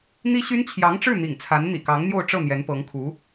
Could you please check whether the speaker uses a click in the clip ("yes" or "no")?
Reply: no